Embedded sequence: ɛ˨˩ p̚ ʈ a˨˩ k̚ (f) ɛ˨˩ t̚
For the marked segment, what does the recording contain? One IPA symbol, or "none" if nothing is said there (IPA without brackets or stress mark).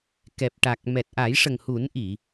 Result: m